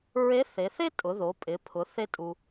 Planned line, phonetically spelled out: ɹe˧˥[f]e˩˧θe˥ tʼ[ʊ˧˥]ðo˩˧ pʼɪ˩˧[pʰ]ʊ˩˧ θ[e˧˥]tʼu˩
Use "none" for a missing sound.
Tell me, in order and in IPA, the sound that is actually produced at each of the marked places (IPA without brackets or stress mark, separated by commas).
θ, ʊ˩˧, pʰ, e˧